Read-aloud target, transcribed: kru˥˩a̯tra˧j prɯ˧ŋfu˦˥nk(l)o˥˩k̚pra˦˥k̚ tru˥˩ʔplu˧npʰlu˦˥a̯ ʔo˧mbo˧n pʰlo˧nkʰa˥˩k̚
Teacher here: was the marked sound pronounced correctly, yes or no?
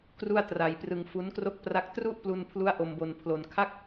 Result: no